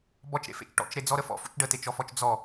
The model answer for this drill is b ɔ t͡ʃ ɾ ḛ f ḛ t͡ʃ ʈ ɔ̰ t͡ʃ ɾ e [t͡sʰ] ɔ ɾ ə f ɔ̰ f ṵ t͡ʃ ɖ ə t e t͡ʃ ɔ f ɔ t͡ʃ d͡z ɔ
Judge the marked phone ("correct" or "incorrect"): incorrect